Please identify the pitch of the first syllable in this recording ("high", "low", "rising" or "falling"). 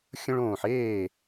high